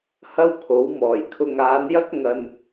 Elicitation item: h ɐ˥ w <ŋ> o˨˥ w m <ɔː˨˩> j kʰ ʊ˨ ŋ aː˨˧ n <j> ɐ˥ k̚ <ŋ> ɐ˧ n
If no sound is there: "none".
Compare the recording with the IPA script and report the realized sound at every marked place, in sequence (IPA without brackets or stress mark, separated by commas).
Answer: kʰ, ɔː˨˩, j, ŋ